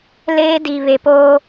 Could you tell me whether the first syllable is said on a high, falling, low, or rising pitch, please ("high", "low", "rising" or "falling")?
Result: high